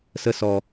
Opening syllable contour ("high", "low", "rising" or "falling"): high